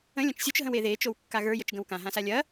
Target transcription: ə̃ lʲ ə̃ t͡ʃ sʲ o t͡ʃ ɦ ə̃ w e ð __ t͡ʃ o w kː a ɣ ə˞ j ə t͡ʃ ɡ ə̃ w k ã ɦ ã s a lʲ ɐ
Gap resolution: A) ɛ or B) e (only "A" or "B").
B